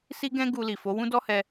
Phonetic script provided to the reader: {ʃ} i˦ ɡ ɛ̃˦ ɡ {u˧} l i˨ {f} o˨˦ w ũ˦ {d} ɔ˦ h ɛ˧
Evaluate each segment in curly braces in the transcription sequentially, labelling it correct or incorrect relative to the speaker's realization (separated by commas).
incorrect, correct, correct, correct